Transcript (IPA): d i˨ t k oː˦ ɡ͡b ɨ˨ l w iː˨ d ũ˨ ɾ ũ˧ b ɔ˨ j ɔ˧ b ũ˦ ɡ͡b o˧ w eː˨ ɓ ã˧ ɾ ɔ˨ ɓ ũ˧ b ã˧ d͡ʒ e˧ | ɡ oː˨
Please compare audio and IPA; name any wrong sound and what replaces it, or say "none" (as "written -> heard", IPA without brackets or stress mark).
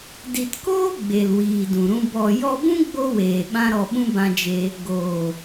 ɨ˨ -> e˨